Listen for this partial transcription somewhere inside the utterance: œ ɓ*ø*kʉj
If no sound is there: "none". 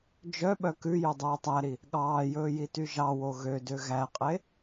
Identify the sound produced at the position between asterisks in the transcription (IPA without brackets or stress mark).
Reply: œ